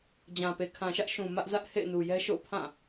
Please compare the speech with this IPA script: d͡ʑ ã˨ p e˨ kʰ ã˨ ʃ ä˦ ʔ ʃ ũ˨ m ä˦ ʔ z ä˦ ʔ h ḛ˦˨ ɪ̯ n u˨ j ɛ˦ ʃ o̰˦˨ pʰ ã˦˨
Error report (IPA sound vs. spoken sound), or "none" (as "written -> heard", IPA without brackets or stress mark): none